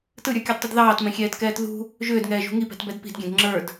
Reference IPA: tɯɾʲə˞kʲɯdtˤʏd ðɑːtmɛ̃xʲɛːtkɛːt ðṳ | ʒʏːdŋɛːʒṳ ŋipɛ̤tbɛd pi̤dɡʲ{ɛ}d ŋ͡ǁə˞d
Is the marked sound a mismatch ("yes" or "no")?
yes